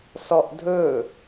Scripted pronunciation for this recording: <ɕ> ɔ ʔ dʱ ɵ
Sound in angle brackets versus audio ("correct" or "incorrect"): incorrect